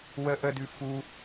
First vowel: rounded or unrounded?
unrounded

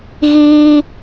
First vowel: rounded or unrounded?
unrounded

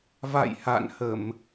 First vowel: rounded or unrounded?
unrounded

